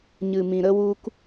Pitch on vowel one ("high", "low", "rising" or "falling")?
low